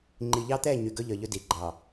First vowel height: high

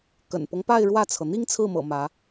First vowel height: mid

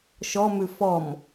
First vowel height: mid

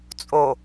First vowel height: mid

